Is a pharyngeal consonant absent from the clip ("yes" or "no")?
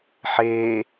no